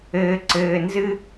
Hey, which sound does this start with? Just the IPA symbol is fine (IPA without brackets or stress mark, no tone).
ɘː